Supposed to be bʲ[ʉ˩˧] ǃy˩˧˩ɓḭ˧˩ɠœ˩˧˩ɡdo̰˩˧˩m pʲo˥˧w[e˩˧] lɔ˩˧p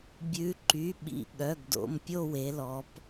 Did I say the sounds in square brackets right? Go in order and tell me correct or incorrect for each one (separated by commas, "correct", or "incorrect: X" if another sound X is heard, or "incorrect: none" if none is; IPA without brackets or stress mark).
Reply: correct, correct